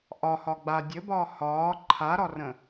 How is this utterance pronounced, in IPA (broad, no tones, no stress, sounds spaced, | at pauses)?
ʔ ɒ h ɒ ɡ͡b a dʲ ɘ b ɒː h ɒː ǃʰ a ɾ ɒ r ə̃